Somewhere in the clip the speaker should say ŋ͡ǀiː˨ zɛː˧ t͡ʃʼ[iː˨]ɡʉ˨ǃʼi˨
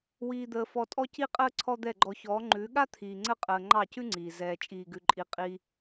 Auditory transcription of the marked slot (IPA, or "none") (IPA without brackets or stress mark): iː˨